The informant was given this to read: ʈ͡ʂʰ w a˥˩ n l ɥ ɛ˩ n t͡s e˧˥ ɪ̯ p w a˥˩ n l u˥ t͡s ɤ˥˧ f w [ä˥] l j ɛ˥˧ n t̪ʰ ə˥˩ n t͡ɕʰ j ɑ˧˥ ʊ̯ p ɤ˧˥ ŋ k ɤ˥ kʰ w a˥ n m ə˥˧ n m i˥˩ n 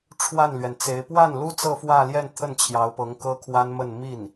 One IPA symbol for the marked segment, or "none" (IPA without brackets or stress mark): ä˥˧